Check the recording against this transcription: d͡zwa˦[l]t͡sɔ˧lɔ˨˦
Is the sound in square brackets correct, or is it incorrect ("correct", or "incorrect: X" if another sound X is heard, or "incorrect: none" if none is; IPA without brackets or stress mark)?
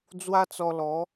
incorrect: none